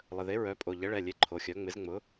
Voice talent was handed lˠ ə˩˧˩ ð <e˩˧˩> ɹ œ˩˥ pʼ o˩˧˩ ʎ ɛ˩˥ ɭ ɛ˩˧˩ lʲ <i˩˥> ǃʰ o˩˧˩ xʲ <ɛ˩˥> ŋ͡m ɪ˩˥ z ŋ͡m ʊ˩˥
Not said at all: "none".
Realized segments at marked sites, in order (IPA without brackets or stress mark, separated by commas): e˩˥, e˩˥, œ˩˥